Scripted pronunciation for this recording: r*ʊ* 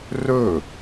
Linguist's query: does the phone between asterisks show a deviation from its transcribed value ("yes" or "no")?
yes